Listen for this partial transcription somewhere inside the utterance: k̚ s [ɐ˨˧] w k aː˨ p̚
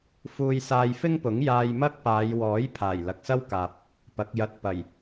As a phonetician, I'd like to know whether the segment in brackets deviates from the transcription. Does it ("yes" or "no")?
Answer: yes